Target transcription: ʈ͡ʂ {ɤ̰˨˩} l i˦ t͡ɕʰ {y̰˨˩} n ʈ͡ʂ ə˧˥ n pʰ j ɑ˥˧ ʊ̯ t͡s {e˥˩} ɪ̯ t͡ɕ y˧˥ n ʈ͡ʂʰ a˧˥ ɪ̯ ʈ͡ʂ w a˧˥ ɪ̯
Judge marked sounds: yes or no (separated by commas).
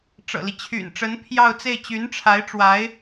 yes, yes, yes